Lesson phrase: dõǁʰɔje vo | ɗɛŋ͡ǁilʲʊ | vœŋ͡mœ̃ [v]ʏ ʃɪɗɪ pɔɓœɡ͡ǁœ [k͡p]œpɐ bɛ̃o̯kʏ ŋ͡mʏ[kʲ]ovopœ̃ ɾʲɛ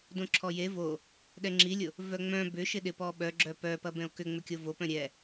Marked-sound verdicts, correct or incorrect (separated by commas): incorrect, incorrect, correct